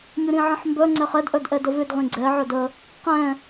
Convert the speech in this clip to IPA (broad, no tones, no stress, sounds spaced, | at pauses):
mʲ ʊ ɾ ĩ ʕ ə̃ ħ m b œ ŋ͡ǀ ɛ χ ɛ d ʔ œ d ʔ ɛ d ə v ʏ d ʁ ĩ ɡ͡ǀ ɛ ʕ œ d ə | q ɛ̃